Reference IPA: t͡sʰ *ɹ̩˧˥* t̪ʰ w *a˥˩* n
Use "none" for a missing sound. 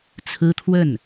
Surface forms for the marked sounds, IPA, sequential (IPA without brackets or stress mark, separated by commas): ɹ̩˥, ə˥˩